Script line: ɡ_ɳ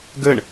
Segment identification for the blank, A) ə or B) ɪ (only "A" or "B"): A